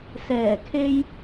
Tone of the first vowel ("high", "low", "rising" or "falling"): low